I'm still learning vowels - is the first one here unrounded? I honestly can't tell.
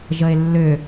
yes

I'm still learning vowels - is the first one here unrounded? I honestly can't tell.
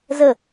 yes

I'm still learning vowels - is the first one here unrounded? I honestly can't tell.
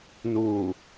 no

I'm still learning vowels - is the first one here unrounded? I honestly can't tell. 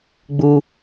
no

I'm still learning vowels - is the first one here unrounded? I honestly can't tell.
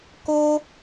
no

